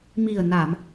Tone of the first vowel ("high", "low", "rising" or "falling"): low